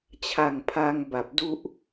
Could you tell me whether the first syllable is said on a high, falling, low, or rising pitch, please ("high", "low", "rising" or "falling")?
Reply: low